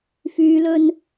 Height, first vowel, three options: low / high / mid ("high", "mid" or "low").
high